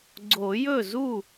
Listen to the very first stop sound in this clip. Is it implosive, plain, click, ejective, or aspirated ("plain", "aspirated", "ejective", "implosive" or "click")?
click